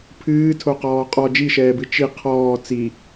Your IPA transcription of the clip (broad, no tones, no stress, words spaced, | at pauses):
pʰɨːtʰoqɔː qʼɔ d͡ʒiʃɛːbɨ t͡ʃi qʰɔː t͡si